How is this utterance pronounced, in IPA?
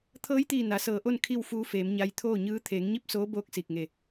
t̪ʰ ɤː˧˥ j t̪ iː˧˩ n a˩˧ s ɤː˧˩ ʔ o˥˨ n kʰ i˥˨ w f uː˧˥ f eː˩˧ m ɲ a˧ j t̪ʰ oː˥˨ ɲ ɯː˧˥ t̪ʰ eː˩˧ ŋ ɲ i˧˥ p̚ s oː˧˥ b oː˧˥ k̚ s iː˧˩ k̚ ŋ e˧˩

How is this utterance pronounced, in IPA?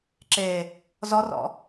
ǁ e | z ɔ r ɔ̰

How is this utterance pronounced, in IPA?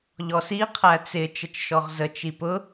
ʎ ɔ s i qʰ æ t͡s ɪ t͡ʃ ə t͡ʃ ʃ ɔ ʁ z ə t͡ʃ i p ʊ

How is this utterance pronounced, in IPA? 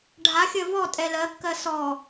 ɖʱ a xʲ ɜ v ɔ tʼ ɛ l ɜ kː ɜ s ɔ

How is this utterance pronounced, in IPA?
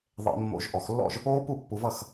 ðˤ ḛ˧˩˧ mː o̰˧˩˧ ʒ ʔ ɔ˧˩˧ x lː ɔ̰˥˩ ʒ | oː˦˥ p u˥˩ pː u˧ v ʌ˥˩ x

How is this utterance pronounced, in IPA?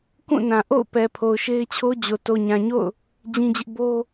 k ũ˦˨ n ã˨ ʔ o̰˦˨ ʊ̯ p ɛ˨ pʰ o˨ ʊ̯ ʃ e˦ ɪ̯ t͡ɕʰ o˦ d͡ʑ o˨ t o˨ ɲ ã˨ ɲ o̰˦˨ ʊ̯ | d͡ʑ ĩ˦ d͡ʑ ɪ˦ ʔ b o˦

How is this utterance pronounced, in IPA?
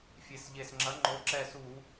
fʲ e˨˩ s ʎ e˨˩ s ŋ͡ǁ ɐ˨˥ ŋ͡ǃ o˨˥ ǁ ɛ˦˨ s u˧˩˧

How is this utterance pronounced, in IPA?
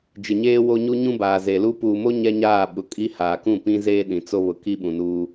d͡ʒ ɪ˨ ɲ eː˦ w o˦ ɲ u˦ ɲ ũ˦ b aː˨ z e˨ l u˦ p uː˨ m o˦ ɲ ɛ˦ ɲ aː˦˨ ɓ ʊ˨ kʼ i˦ h aː˨ k ũ˦˨ p ĩ˦ z eː˦ ɗ ĩ˨ t͡s o˦ β ʊ˨ k i˦ ɓ ũ˨ n uː˦

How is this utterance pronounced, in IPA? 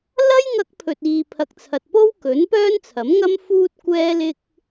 l ɐ˥ j ŋ ɐ˧ k̚ pʰ ɵ˨ t̚ iː˨ pʰ ɐ˨ k̚ t͡sʰ ɐ˨ t̚ p o˥ w k ɵ˨˥ n p œː˥ n t͡sʰ ɐ˨˥ m ŋ ɐ˥ m f uː˥ t̚ kʷ ɛː˥ l ɪ˧ k̚

